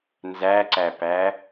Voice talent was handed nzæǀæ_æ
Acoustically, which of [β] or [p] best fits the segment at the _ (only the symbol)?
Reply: p